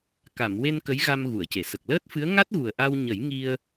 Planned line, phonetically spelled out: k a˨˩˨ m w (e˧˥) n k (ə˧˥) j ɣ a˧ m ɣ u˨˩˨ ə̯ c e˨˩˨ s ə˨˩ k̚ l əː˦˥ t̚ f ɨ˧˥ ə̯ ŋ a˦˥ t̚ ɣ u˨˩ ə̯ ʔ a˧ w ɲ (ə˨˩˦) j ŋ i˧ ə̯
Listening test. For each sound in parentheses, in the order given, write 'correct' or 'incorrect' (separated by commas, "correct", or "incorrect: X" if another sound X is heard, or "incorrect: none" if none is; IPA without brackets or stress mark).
incorrect: e˧, correct, correct